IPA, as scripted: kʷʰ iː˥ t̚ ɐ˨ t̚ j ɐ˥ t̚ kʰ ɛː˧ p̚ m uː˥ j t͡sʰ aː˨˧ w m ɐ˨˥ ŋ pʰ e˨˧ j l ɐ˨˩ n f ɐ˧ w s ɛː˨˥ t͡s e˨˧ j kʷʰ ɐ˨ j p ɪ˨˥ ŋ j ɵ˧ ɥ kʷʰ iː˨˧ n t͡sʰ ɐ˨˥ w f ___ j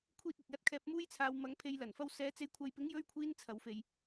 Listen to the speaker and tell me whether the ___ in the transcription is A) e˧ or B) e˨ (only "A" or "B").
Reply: B